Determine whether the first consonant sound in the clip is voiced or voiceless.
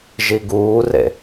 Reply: voiced